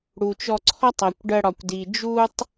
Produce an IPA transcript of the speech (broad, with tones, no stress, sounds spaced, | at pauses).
ɽ u˨ t͡ʃ ɔ˧ ǀʰ ɔ˦ tˤ æ˨ kʷ ɖ ɜ˧ ɽ ɒ˨ kʷ d i˨ d͡ʒ u˦ tˤ